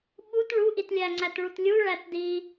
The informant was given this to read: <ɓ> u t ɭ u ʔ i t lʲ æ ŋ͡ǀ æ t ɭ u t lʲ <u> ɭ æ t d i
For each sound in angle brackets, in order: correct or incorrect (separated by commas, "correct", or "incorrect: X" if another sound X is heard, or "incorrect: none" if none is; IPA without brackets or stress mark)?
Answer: correct, correct